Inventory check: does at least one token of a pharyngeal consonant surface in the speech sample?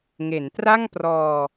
no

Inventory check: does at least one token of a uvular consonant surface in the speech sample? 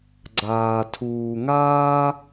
no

